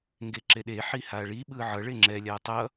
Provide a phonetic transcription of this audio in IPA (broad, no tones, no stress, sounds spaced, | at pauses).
ŋ ɡ e ǁ e ɗ e ħ i h a ɭ i ɓ ɯ ʕ ʌ ɭ e ŋ͡ǁ ɛ lʲ a tˤ ʌ